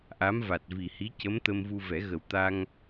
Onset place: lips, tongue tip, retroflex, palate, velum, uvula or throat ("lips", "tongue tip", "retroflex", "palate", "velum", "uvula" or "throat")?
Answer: throat